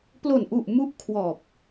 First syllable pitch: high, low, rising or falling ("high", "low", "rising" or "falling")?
low